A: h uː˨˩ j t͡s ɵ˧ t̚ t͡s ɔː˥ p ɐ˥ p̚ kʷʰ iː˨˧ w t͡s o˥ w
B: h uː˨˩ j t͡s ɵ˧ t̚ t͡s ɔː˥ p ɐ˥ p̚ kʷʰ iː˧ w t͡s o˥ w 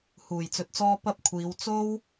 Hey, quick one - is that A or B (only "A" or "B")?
A